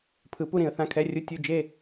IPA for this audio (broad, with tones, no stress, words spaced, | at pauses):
pʰɯ˨˩˦pu˥˨ ɾĩ˨˩˦ə̯θã˧˥˧kʰɛ˧˥˧rʲu˧˥˧ tʲu˥˨ d͡ʒe˥˨